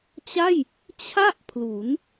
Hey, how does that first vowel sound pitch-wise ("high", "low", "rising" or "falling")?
falling